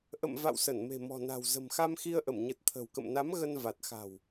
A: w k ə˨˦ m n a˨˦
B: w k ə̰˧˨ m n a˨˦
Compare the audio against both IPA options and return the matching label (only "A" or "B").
B